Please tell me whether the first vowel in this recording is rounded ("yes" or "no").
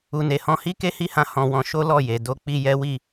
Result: yes